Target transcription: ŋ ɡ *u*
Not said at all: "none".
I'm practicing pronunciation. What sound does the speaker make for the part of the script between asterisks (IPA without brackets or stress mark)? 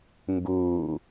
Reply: uː